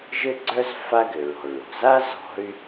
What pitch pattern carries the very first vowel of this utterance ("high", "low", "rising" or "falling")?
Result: high